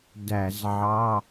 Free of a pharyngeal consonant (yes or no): no